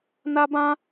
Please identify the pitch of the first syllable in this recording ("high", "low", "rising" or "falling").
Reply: high